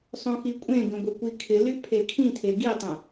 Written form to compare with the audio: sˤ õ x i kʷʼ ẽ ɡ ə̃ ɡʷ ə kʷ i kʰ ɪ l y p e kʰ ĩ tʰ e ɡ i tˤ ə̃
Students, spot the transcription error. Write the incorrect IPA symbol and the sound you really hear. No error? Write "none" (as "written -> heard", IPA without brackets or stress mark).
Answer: p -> pʰ